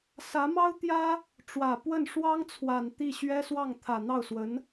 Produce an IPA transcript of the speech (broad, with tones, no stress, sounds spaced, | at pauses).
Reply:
s ä˧˥ m ɑ˥ ʊ̯ t̪ j ä˥ | ʈ͡ʂ w ä˨˩ p w ə˥˩ n ʂ w ɑ˥ ŋ t͡sʰ w a˨˩ n t̪ i˥˩ ɕ ɥ ɛ˥ s w ɑ˥˩ ŋ t̪ʰ ä˨˩ n̪ ɑ˥˩ ʊ̯ s w ə˧˥ n